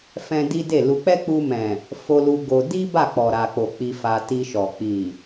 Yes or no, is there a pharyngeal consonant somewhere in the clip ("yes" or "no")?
no